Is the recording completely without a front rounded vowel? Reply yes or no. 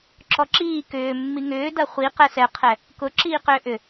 no